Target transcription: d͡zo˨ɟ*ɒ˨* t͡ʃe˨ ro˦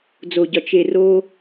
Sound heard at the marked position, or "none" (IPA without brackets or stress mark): ɒ˨